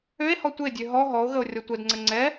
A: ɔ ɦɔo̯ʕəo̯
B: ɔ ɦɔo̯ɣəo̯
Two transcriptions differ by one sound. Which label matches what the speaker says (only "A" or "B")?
B